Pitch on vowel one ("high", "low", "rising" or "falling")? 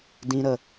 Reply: high